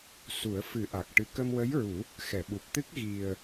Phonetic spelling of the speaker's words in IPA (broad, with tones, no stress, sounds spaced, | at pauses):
s u˨˩˦ ə̯ f ɨ˨˩˦ ʔ a˨˩ k̚ ʈ ɨ˧ k ə˧ m w ə˧˥ j ɹ u˨˩˦ | x ɛ˨˩˨ ɓ u˨˩ p̚ t̪ ɨ˦˥ k̚ ɣ i˨˩ ə̯